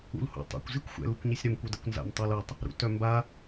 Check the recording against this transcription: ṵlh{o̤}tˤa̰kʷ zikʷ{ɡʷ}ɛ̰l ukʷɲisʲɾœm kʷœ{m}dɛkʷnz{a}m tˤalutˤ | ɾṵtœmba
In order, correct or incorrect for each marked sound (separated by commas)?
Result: incorrect, incorrect, incorrect, incorrect